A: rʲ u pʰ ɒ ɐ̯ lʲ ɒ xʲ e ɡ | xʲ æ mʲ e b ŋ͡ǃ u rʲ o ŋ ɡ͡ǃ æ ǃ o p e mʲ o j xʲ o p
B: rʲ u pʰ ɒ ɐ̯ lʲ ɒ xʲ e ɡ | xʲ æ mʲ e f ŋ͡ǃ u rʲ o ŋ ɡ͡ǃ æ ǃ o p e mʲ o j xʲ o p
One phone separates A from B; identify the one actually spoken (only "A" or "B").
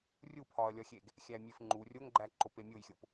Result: B